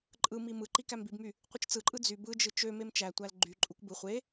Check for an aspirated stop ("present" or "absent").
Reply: absent